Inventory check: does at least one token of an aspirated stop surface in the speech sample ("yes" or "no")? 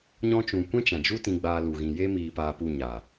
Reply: no